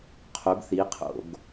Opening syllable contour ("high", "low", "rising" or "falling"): rising